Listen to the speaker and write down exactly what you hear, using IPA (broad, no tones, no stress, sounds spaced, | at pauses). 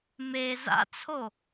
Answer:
m e z a̰ t͡sʰ o